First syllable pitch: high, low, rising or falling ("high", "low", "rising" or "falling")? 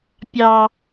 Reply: low